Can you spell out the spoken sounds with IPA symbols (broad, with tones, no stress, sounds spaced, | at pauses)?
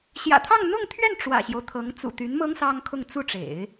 ɕ j ä̰˨˩ t̪ʰ ɑ˥˧ ŋ n̪ ʊ˥˧ ŋ t̪ʰ ɥ ɛ˥˩ n ʈ͡ʂ w ä̰˨˩ ɕ j o˦ ʊ̯ t̪ʰ ɤ˧˥ ŋ t͡s ṵ˨˩ t̪ y˧˥ n m ɤ˥ ŋ s ɑ˥ ŋ kʰ ʊ˥˧ ŋ t͡s u˥˩ ʈ͡ʂ ḛ˨˩˦ ɪ̯